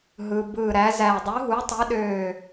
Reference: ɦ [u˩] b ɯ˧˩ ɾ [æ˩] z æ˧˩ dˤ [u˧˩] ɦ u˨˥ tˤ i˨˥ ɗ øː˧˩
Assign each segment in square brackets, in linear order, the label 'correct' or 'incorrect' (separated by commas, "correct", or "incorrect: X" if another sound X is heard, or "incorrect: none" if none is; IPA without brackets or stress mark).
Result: incorrect: ɯ˩, incorrect: æ˨˥, incorrect: u˨˥